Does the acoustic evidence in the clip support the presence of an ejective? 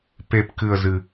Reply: no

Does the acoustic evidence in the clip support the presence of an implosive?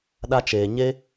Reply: yes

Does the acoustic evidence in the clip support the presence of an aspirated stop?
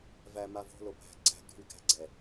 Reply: no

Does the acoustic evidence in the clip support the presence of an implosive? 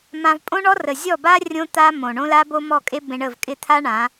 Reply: no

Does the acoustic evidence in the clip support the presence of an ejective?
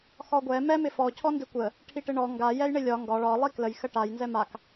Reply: no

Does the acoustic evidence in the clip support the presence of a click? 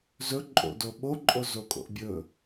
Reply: yes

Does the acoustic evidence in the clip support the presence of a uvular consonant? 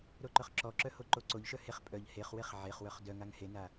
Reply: yes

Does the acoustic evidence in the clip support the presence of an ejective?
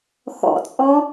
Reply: yes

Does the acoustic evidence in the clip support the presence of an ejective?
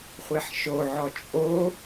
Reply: yes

